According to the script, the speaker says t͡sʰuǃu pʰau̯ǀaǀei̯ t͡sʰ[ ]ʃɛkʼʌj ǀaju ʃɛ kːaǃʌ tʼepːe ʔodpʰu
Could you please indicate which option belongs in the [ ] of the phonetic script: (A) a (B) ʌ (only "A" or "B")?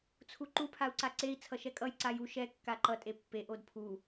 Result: B